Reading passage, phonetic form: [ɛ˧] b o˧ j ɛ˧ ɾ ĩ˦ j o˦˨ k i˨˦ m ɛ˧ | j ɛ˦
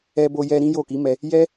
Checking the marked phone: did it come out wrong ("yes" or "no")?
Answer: no